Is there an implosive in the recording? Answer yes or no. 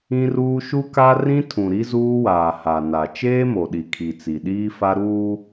yes